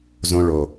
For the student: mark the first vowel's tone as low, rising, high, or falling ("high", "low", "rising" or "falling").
high